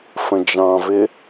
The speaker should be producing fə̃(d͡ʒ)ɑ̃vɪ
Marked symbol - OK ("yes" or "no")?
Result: yes